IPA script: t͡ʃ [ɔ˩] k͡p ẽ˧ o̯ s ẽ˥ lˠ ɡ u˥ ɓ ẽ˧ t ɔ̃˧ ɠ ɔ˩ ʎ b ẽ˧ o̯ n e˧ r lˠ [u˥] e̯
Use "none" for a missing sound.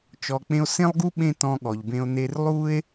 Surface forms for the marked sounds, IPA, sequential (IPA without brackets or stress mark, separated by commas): ɔ˩, u˥